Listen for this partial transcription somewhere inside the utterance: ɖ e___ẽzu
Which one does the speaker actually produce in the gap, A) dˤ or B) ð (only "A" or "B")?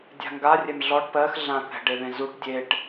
B